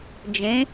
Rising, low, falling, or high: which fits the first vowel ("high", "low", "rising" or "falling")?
rising